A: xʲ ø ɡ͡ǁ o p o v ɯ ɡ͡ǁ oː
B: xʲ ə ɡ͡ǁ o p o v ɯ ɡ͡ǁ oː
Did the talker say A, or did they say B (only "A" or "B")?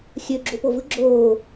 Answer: A